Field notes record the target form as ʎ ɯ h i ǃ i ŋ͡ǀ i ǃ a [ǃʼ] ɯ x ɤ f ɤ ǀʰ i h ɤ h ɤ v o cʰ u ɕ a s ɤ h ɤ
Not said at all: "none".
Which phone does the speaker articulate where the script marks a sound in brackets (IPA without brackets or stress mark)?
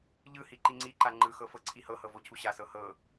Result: ŋ͡ǃ